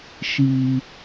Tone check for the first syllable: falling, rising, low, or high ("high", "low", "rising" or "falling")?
high